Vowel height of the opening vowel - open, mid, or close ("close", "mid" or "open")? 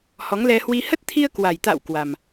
mid